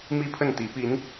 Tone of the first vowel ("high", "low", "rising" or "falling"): high